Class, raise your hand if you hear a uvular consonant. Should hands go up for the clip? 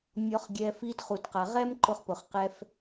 yes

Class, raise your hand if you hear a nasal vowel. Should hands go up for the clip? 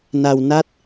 no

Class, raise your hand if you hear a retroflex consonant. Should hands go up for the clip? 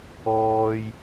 no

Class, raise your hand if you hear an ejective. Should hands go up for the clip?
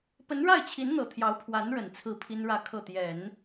no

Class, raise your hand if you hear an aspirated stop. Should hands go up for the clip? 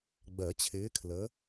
yes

